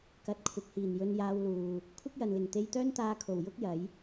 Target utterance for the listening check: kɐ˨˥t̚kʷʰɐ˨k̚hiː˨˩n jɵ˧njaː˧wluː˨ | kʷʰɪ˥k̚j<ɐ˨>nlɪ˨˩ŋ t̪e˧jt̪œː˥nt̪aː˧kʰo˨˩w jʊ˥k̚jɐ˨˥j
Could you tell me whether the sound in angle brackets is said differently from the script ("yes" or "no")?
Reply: no